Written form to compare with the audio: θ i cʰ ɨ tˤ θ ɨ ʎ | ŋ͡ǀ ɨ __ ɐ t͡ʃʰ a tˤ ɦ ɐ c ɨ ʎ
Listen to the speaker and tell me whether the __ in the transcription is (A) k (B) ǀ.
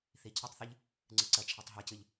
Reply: B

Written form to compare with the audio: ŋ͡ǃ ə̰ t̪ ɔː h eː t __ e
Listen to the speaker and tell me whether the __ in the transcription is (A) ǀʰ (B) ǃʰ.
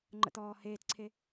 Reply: A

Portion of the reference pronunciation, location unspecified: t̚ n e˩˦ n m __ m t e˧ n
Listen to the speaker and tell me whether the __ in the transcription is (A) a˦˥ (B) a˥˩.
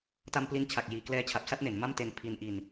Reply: B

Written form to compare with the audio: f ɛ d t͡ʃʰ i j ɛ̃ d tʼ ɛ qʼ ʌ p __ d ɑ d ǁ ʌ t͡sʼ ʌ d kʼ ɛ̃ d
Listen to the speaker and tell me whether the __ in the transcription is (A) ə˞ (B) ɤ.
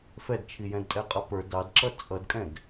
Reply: A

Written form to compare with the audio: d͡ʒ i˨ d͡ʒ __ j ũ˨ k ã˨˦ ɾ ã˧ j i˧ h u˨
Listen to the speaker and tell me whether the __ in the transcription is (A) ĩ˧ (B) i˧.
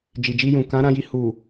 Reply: B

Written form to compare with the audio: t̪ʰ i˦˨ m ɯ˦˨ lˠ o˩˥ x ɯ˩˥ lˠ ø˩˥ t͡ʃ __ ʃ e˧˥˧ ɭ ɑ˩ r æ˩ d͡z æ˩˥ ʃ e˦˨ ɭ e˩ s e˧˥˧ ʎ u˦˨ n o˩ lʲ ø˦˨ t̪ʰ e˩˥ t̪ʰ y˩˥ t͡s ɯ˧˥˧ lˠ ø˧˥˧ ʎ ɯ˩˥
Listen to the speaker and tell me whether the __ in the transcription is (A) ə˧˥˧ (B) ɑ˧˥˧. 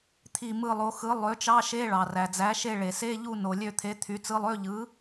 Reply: B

